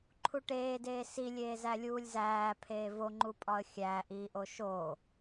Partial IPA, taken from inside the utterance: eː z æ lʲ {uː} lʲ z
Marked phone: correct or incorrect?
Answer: correct